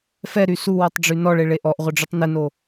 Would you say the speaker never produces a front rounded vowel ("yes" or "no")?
no